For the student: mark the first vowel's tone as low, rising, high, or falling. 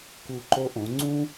low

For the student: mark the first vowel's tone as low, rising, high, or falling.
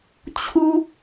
high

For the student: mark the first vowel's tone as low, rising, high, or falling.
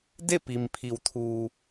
falling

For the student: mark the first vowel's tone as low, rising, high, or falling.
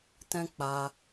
high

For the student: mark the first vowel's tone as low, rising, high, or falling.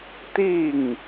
falling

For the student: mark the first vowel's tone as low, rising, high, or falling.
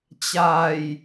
low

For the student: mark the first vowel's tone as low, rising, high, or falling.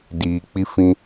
low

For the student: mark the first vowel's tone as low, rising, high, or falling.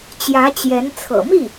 rising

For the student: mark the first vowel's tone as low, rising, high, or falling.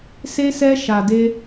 high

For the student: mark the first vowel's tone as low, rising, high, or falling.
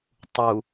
low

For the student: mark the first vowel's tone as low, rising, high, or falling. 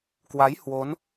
rising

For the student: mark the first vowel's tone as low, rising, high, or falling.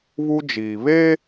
high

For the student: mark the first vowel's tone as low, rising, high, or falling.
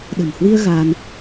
low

